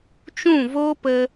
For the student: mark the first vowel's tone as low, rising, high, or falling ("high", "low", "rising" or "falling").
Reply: falling